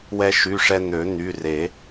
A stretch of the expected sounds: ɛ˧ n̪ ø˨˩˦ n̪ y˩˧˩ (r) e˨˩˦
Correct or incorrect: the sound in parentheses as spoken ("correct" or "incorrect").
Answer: correct